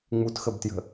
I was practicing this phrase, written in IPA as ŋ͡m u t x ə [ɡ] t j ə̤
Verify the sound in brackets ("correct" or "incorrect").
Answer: incorrect